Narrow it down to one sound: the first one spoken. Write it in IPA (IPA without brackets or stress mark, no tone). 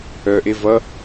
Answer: œ